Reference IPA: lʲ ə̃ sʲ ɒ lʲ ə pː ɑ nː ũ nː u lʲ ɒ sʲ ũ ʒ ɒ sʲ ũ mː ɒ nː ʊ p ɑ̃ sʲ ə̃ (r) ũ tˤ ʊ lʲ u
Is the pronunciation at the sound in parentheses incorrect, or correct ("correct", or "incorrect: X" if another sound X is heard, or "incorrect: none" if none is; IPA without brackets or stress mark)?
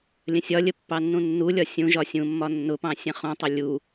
incorrect: χ